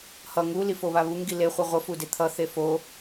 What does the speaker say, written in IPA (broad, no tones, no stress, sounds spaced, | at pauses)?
h ʌ ŋ u l i f o β a β u ŋ ɡ i l e χʷ ɯ ʁʷ ʌ f u d e t̪ʰ ʌ θ e f o